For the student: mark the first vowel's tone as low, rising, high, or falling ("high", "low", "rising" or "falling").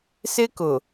high